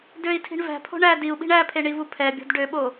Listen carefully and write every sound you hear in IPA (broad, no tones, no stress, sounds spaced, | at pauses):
d ø i̯ tʰ i̤ ɳ v æ̤ pʰ o̤ ɳ æ d i u̯ ɓ i̤ ɳ æ pʰ e ɳ i v u pʰ ɛ bʲ o̤ d ɖ ø ɓ o